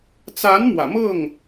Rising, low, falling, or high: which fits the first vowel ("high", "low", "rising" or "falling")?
rising